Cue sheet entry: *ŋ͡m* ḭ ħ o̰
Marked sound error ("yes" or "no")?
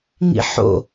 yes